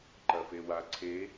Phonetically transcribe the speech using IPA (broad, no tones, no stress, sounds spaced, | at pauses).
ǃ ɐ f e w a ǀʰ e